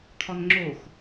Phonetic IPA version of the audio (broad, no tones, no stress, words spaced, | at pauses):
t̪ʰɒnŋ͡ǁox